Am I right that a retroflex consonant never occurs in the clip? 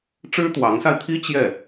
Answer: no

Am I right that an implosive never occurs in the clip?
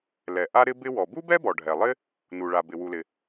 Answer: yes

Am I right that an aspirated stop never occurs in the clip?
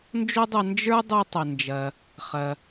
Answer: yes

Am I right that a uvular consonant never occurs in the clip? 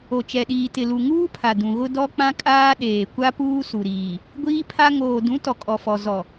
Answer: yes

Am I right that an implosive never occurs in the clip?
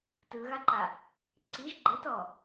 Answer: yes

